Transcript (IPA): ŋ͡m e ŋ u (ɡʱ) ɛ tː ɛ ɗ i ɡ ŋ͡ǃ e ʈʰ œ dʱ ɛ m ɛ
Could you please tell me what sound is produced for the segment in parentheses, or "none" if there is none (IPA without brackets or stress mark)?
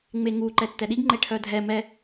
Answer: ǃ